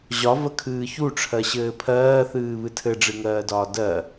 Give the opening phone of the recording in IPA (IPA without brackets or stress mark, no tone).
ʑ